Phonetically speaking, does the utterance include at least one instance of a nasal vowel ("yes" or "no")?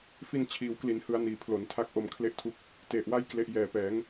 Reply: no